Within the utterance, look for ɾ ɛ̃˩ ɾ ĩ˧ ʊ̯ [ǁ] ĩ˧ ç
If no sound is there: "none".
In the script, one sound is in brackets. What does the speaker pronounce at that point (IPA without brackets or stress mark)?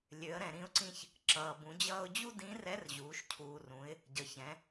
ǀ